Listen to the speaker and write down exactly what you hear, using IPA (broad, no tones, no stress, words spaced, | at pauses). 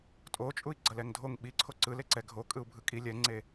tʼot͡ʃʼui̯ ɡ͡ǀʌlɛŋdʱoŋ ɓiǀʰo ǀɯleǀɛ ɡʱo kʼɯu̯bʱɯkʼi lʲɛŋ͡ǀe